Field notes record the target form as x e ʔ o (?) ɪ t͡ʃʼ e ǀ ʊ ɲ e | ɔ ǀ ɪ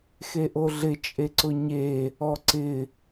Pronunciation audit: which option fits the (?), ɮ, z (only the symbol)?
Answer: ɮ